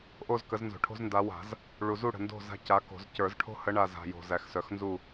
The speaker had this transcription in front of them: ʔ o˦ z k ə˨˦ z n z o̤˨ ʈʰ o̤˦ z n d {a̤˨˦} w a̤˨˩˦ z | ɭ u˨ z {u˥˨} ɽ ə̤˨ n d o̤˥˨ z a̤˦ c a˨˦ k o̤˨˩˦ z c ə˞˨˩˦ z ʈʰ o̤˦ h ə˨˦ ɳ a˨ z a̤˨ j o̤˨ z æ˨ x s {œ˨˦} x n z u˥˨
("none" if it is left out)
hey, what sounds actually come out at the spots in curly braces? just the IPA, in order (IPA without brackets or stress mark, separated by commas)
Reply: a˨˦, u˥˨, œ˨˦